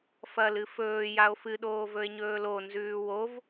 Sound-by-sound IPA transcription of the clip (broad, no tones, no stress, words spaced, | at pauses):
fɐlɨ fɵːjao̯ fɨɗoː vɵe̯ɲɵːlo nzʉːwov